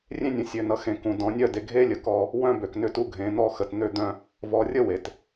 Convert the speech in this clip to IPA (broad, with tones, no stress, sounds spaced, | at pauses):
rʲ ẽ˦ nʲ ũ˨ sʲ ø˨ n ʌ˨ x ẽ˨ k ũ˨ d ɔ̃˨˦ nʲ œ˦˨ d e˨ ɡʱ e˦ lʲ ə˨ k ɔ˦ | w œ̃˦ b ø˨ k n ʏ˦ t u˦ ɡʱ ẽ˨˦ n̪ ɔ˦˨ x ə˨ t n̪ ø˦ d̪ œ̃˦ | v ɔ˨ rʲ ə˦ w e˨ t